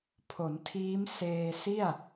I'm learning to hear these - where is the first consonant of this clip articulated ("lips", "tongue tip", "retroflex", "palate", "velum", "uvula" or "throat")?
lips